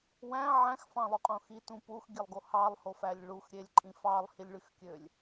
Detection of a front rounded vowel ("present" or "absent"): present